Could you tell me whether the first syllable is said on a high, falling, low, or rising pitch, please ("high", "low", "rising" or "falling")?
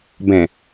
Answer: low